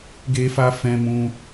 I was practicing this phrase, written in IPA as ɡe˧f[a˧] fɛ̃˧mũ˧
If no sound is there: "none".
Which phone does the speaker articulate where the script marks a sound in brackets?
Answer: a˧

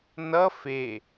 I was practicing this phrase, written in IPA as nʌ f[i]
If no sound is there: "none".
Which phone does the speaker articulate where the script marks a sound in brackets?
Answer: e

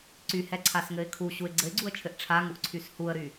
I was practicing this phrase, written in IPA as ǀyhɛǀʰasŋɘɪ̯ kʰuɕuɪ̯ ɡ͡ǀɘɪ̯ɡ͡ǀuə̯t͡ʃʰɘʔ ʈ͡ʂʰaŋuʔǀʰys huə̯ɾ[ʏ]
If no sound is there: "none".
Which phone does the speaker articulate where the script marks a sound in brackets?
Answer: y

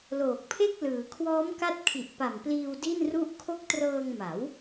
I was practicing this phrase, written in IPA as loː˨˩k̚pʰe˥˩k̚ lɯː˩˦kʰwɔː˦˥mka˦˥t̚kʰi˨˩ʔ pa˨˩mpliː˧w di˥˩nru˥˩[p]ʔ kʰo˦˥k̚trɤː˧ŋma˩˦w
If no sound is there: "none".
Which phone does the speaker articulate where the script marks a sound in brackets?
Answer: none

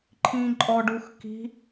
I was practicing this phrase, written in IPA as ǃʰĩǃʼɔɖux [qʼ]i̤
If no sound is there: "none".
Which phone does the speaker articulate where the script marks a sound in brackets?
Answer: k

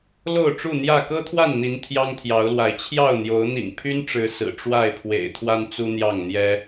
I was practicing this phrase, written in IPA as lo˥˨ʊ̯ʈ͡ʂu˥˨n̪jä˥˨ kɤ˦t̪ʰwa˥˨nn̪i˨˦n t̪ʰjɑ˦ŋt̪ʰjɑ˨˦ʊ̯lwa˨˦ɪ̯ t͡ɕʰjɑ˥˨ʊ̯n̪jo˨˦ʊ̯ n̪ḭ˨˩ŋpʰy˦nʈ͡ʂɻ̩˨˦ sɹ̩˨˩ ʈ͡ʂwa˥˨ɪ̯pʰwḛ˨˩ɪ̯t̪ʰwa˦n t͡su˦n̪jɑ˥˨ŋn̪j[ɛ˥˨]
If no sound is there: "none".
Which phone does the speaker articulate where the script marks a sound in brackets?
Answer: ɛ˦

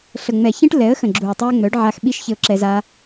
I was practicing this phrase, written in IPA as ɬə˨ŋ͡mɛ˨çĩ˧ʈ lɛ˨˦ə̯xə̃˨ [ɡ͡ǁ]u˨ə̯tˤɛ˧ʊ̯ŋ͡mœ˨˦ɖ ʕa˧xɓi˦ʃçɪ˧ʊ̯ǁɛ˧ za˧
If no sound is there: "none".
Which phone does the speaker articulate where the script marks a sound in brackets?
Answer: ɡ͡ǁ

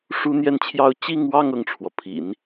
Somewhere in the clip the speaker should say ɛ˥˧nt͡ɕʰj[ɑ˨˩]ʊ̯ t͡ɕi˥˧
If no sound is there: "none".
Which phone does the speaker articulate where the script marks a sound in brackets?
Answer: ɑ˥˧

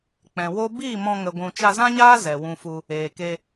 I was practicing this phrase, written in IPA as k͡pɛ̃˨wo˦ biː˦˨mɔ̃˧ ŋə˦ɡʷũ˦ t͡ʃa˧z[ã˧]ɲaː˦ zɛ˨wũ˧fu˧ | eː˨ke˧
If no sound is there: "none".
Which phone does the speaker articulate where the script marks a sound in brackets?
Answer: ã˦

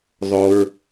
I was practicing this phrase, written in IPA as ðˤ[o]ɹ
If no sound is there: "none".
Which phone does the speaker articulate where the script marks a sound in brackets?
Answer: o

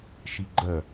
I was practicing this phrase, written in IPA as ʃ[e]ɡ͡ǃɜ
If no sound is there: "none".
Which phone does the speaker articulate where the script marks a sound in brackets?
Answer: i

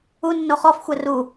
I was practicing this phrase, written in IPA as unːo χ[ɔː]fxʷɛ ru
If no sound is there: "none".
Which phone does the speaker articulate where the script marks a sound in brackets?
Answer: ɔ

